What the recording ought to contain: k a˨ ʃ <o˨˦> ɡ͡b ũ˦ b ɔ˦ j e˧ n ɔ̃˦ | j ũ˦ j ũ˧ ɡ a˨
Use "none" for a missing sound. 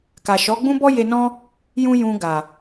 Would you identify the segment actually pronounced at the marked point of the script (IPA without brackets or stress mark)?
ɔ˨˦